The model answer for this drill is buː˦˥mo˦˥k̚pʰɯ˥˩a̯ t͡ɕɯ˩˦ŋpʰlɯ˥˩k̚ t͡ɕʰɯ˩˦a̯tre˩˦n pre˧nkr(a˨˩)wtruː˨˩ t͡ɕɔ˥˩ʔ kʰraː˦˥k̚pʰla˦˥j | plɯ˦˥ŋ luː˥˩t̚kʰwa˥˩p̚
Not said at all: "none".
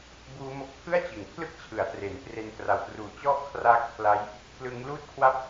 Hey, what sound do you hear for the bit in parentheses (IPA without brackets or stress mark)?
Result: a˨˩